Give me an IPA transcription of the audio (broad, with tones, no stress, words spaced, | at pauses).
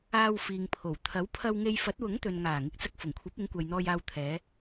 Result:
aː˧wfiː˨ŋpʰo˨˩w t̪ʰɐ˨˥wpʰɐ˧wŋe˧j fɐ˨˥t̚wʊ˨˥ŋ t̪ɵ˨nŋaː˨˩ ŋɪ˨k̚t͡sɐ˧k̚fʊ˨˩ŋkʷʰɐ˨˥p̚ ɪ˨˥ŋkʷɐ˨jn̪ɔː˧j aː˨wt̪ʰɛː˨˧